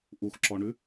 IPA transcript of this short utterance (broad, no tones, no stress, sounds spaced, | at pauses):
ʔ u x ǁ ɔ ɳ ʉ